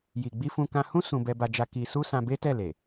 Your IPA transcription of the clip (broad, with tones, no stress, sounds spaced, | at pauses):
j i˨ ɡ͡b i˧ f ũ˧ k ã˧ h ũ˦ s ũ˧ b ɛ˧ b a˧ d͡ʒ a˧ k i˧ s u˦ s ã˧ b e˦ t ɛ˦˨ l e˨